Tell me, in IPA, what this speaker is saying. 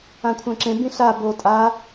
ã kʷʰ ã ǁ ẽ b ĩ ɬ a b o tʼ a

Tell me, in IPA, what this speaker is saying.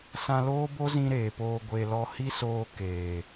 s ã˧ l oː˦ b o˦ z ĩ˦ ɾ eː˨ p oː˧ ɡʷ e˨ l ɔ˧ h i˦ s oː˧ k eː˨

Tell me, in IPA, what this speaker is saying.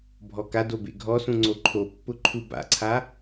bʱ ɔ k a d o b ḛ ɡʱ ɔ s ũ ŋ͡ǀ o ǃʰ o pː ʊ ǃʰ u b a̰ ǀʰ a

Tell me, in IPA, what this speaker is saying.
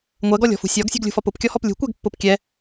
ŋʷ ɜ ɡ ɔ lʲ ɔ̤ f ṳ sʲ ɒ ɡ sʲ ṳ ɡ lʲ ṳ f ɒ p ʊ p kʲ ɔ h ɔ p lʲ ṳ kʷ ɛ ɡ pː ʊ p kʲ ɛ

